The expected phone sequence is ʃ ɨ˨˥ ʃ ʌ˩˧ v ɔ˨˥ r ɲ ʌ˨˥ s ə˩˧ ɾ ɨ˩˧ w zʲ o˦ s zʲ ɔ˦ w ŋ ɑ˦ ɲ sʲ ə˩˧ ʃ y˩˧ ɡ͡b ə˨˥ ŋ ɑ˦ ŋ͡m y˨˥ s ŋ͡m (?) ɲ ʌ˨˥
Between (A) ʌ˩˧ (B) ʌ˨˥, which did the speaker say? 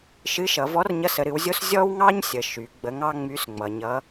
A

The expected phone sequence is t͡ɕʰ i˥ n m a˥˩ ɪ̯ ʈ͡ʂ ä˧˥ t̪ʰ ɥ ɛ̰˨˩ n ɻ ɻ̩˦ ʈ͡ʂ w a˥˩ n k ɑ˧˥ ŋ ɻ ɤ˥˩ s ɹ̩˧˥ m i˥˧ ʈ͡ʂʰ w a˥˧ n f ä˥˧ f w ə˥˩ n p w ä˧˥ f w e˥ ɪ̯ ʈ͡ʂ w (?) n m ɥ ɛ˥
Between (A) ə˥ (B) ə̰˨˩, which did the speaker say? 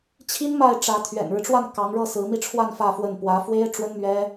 A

